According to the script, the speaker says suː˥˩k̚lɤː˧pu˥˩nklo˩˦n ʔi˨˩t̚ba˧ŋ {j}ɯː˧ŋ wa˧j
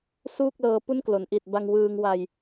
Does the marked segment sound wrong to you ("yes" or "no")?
yes